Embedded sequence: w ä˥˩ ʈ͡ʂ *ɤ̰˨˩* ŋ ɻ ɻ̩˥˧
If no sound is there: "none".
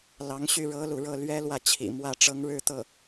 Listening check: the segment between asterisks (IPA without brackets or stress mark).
ɤ˧˥